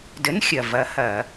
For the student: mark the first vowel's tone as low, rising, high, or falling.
rising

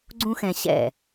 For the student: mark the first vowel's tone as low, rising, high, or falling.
high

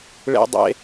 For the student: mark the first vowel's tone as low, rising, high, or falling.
high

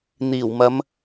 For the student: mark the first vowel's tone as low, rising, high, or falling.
low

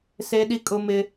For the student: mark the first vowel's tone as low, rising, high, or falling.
high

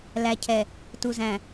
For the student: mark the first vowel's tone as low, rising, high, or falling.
low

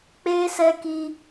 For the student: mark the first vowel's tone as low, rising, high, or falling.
high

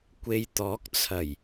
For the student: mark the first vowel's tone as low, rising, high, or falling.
low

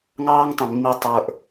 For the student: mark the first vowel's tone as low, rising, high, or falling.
high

